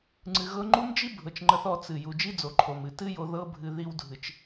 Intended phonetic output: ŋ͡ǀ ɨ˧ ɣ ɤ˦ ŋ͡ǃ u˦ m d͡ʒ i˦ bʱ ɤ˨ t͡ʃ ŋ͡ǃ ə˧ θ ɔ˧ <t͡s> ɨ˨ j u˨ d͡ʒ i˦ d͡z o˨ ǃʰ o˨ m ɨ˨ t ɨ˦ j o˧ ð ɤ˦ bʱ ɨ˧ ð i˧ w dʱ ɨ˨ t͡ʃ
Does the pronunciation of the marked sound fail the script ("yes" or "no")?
no